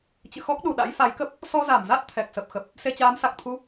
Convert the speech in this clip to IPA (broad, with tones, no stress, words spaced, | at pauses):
t͡ɕɨ̰˧˨xɔ˦˥k̚ ɗu˨˩ɗa̰˧˥j fa˨˦jkə˦˥p̚ | sɔ˧za˧˩mza˦˥t̚ t̪ʰɛ˨˩k̚sə˨˩p̚xə˨˩p̚ | se˧t͡ɕaː˨˦msa˨˩k̚t̪ʰu˧